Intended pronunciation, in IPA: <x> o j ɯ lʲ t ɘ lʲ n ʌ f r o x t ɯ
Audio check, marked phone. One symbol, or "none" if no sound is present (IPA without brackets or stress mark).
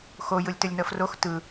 x